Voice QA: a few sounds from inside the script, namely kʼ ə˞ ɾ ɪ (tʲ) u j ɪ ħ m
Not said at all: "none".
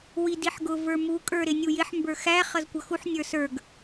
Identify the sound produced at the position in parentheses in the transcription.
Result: nʲ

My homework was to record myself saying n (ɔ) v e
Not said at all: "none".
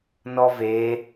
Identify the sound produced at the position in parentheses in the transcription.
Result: ɔ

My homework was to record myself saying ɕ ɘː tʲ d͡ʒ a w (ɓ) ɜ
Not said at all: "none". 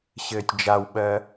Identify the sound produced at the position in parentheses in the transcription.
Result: ɓ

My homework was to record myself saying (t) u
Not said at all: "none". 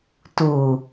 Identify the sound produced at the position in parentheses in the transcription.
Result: t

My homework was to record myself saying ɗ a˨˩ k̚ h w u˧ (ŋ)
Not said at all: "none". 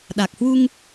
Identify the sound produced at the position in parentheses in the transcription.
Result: ŋ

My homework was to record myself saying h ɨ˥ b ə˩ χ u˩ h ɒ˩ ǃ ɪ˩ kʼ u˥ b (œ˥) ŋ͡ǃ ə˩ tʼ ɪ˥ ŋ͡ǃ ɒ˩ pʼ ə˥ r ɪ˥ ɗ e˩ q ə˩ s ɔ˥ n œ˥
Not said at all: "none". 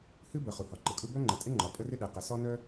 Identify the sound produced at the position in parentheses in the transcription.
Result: œ˥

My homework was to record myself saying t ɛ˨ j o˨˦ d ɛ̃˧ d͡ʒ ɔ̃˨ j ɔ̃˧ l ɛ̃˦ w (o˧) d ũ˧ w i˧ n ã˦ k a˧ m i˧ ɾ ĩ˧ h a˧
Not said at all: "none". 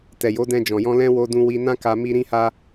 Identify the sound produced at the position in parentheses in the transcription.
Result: o˧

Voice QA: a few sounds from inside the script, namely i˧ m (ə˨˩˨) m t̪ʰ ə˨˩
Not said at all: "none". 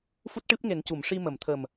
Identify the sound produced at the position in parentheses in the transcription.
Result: ə˨˩˨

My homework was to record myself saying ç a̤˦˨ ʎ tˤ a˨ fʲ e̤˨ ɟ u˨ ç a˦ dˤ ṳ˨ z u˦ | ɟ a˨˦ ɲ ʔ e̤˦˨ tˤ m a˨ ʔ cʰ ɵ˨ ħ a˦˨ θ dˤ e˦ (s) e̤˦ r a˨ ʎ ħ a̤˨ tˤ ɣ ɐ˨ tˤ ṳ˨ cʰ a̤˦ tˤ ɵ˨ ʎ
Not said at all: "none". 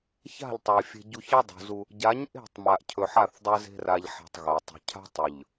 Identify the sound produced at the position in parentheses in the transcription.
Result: z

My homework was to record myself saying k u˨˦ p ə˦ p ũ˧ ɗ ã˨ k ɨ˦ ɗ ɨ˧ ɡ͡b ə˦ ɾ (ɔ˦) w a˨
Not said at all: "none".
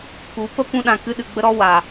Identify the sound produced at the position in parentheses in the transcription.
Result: ɔ˦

